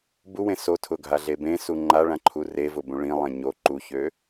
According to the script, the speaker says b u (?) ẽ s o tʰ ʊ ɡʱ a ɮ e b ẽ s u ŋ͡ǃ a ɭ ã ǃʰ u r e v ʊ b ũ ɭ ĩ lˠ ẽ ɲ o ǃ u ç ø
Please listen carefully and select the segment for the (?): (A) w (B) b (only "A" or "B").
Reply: A